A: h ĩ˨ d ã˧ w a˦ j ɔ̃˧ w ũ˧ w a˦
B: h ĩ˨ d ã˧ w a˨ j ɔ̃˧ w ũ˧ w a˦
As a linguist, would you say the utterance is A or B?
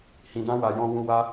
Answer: B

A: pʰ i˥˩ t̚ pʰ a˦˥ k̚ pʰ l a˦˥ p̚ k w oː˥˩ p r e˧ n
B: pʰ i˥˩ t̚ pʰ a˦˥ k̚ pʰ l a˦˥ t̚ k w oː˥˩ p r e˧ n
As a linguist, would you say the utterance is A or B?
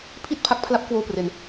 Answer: A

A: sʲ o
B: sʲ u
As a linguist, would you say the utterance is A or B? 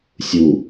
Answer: B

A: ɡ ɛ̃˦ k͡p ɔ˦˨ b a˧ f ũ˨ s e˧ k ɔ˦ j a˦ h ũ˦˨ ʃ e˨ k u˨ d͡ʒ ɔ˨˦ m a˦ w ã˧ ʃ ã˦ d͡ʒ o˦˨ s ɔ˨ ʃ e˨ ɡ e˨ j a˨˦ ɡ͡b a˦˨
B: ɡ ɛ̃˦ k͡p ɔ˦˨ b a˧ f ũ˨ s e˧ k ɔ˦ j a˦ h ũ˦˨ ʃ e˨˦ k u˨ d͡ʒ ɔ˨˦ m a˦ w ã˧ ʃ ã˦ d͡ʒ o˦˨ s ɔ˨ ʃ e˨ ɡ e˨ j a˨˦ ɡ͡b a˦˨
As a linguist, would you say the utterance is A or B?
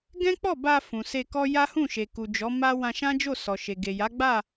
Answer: A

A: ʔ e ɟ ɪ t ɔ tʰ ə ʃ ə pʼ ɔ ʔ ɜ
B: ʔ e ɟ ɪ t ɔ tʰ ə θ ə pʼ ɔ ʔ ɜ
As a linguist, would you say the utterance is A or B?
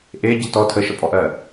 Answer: A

